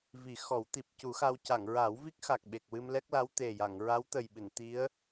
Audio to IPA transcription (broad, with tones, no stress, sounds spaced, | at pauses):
v i˨˩˦ x ɔ˨˩˦ w t̪ i˨˩ p̚ c u˨˩˦ x a˧ w c a˨˩˨ ŋ ɹ a˨˩˦ w v i˦˥ k̚ x a˨˩ k̚ ɓ e˨˩ k̚ w ɨ˧ m l ɛ˦˥ k̚ l a˧˥ w t̪ e˨˩ j a˨˩˨ ŋ ɹ a˧˥ w t̪ ə˨˩ j ɓ ɨ˨˩˨ n t̪ i˧˥ ə̯